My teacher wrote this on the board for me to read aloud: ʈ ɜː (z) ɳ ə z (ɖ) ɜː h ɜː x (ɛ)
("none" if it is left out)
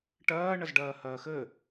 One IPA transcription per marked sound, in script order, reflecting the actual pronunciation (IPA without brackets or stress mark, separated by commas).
none, ɖ, ɘ